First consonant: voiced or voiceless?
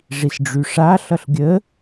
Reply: voiced